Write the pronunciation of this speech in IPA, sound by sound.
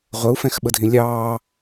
ʁʷ ə u̯ f ɛ̃ x ɓ ə dʱ ĩ lʲ ɑː

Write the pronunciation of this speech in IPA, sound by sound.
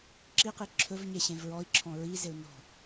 ǁ i q i ǁʰ ɵ v ɲ e ɕ ẽ v ɹ ɔ i̯ ǁʰ ɔ̃ ɹ i z e u̯ n ɔ̤

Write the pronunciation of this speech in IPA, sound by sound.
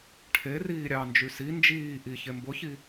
ʈʰ e r iː ɾʲ ɑ n d͡ʒ y s i n d͡ʒ iː ʔ i ç e m b ʊ ç i

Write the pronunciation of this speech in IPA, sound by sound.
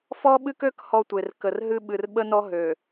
f ɔ˦ ɓ ɨ˦ k ø˦ k h ɔ˦ tʷ e˨ r k ə˨ r ɦ ɨ˦ ɓ ɨ˨ r ɓ ə˦ n ɔ˦ ɦ ø˨

